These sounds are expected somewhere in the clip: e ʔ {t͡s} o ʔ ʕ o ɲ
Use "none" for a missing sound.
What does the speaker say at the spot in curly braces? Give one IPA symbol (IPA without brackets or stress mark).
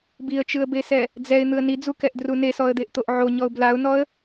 t̪